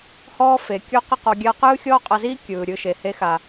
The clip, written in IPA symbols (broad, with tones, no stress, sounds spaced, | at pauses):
h ɔː˦ f e˨ kʲ ɔ˦ q i˦ q ɔ˧ ɡʲ a˦ q ɯː˦ xʲ ɔː˦ qʼ a˧ z iː˦ kʲ ɯː˨ ɾʲ ɯ˧ ʃ e˨ h e˧ x a˨